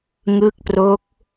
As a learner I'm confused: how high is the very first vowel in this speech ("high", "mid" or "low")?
high